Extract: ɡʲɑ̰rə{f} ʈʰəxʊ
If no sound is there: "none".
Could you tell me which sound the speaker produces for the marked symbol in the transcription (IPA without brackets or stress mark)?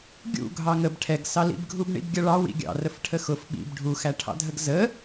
f